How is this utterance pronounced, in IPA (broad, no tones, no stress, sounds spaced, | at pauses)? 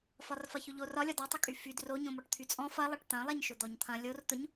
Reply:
f ɒ r f ɐ ç ʊ ʎ o r ɒ lʲ ɒ d ɒ tˤ ʊ kʼ y f y d r o ɲ õ m ɔ ʈ t̪ʰ y t͡sʼ ɔ̃ f ɐ lˠ ɐ ʈ t̪ ɐ̃ lˠ ɛ ɲ ʃ ʊ d̪ ɔ ɲ t̪ʰ ɐ̃ lʲ o r t̪ ʊ ɲ